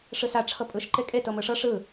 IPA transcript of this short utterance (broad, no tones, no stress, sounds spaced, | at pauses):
ʂ ɯ s a ʈ͡ʂʰ ɤ pʼ ɯ ʃ ǃ e kʼ e t ɤ m ɯ ʂ ɤ ʂ ɯ